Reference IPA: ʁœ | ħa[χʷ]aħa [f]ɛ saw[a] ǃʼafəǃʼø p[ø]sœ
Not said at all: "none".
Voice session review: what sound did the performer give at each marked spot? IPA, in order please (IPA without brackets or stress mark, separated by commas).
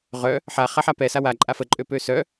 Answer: χ, p, a, ø